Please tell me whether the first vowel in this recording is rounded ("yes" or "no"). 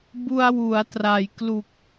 yes